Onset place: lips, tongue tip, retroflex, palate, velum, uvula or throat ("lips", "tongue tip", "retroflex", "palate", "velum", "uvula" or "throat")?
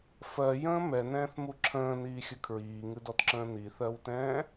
lips